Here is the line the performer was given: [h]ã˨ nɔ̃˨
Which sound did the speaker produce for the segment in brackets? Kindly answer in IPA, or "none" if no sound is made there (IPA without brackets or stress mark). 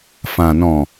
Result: f